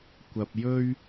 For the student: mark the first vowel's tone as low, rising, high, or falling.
low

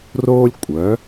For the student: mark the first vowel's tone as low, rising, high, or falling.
high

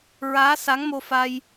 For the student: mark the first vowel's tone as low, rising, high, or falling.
rising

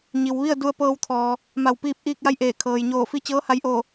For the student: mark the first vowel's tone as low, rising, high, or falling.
low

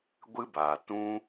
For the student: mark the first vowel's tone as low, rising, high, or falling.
high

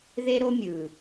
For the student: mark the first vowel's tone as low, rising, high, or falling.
high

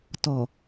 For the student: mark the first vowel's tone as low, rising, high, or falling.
low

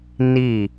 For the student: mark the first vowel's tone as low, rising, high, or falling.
falling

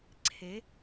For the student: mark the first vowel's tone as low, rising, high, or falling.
rising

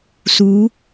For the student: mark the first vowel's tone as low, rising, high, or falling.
rising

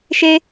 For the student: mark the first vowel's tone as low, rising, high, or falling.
high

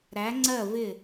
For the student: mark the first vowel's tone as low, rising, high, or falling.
rising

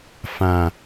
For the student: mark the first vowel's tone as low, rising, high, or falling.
low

